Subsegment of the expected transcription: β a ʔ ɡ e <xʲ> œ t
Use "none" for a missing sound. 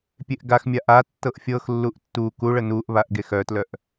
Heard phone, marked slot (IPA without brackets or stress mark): x